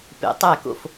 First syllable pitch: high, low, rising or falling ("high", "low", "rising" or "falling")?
rising